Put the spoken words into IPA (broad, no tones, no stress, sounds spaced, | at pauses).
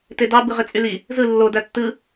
t e d ɑ b ɯ ʁ e t͡sʼ y l i | z ɯ lː o d æ tː ɯ